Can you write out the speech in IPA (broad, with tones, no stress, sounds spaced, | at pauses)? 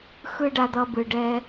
x ɯ˦ ɖ a˧ d̪ ʌ˧ b ɯ˨ ɖ ɛ˦